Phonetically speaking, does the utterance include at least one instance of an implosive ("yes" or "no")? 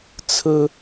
no